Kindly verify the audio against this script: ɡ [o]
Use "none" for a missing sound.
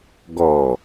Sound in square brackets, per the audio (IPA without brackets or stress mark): ɔ